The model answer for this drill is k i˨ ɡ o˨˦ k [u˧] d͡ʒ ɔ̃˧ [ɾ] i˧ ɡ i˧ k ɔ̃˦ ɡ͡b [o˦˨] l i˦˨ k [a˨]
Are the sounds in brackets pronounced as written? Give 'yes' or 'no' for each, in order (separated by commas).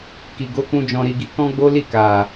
no, yes, no, yes